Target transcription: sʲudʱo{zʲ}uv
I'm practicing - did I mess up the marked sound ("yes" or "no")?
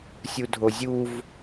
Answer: no